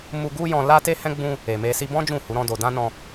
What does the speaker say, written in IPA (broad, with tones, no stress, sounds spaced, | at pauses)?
m u˧ ɡ u˦ j ɔ̃˧ l a˦ t e˦ h ɛ̃˦ ɡ͡b ũ˦ | e˨ m e˧ s i˧ b ɔ̃˦ d͡ʒ ũ˦˨ h u˨˦ ɾ ɔ̃˦ d o˧ d ã˦ n ɔ̃˧